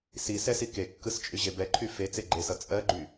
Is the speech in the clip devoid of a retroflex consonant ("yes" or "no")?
yes